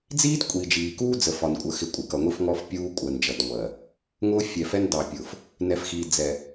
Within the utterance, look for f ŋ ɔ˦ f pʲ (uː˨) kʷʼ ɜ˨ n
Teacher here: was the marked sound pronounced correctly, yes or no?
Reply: no